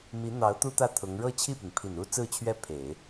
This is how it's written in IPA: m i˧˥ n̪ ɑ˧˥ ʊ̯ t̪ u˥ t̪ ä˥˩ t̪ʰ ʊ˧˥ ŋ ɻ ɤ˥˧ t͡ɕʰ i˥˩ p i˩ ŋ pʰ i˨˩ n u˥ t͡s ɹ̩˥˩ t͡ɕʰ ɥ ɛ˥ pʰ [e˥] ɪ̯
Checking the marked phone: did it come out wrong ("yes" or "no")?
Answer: yes